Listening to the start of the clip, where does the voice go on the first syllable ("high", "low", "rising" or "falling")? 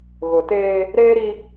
low